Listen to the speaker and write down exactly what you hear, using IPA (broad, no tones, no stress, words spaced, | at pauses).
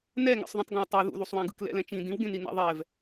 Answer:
nɛŋɛ̰sˤðũtˤ ɡãwtˤo ðṵðusˤwãɡɯk lɛ̰lɛ̃t͡ʃĩ dĩwɡẽni na̰ðˤɛv